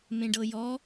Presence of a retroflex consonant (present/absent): present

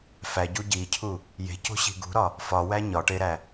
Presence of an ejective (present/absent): absent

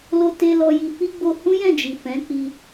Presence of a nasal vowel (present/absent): present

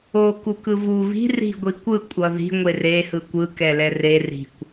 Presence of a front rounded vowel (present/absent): absent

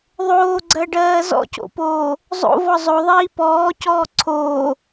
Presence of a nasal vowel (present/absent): absent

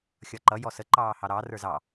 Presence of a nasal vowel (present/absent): absent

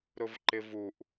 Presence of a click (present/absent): present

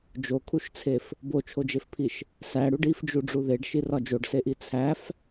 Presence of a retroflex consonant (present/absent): present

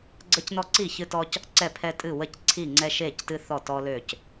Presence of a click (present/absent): present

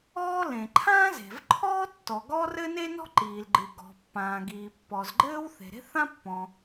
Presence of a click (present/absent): present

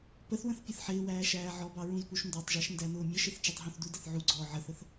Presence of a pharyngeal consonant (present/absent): present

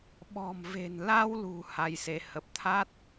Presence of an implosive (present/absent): present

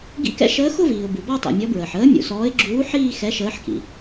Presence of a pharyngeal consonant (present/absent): present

